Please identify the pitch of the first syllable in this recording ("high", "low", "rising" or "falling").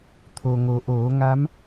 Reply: low